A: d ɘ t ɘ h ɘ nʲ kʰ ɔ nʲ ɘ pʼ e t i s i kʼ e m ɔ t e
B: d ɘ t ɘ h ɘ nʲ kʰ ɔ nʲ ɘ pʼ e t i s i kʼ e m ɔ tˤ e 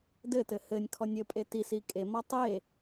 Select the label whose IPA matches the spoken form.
B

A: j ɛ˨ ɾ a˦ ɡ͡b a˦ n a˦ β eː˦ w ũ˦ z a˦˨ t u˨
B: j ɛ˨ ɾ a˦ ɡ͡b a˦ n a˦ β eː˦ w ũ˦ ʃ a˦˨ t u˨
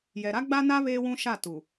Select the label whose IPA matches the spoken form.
B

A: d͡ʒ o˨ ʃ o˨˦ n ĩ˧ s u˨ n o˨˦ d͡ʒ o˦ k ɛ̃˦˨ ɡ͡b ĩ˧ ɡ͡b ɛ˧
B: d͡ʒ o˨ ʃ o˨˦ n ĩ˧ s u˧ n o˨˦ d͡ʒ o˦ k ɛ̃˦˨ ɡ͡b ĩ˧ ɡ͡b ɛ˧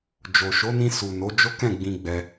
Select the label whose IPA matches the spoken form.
A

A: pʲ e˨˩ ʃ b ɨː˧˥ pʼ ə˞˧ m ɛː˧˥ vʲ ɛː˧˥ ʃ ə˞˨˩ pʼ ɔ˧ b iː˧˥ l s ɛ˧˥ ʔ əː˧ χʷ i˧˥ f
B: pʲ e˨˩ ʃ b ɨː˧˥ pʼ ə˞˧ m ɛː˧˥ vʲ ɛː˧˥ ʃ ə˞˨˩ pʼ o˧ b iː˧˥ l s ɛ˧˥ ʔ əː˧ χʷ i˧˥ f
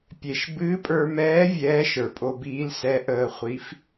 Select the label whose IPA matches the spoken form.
B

